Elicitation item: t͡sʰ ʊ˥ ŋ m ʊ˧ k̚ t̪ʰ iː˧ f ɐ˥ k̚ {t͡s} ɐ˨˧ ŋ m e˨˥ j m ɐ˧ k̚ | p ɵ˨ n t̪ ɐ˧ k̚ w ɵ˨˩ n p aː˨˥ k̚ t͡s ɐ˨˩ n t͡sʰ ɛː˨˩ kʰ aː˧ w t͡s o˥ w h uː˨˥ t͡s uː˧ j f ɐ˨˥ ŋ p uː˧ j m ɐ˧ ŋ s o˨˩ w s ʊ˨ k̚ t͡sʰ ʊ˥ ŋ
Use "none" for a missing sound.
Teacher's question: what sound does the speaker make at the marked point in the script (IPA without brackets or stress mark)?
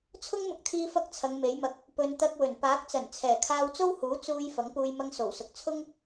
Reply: t͡sʰ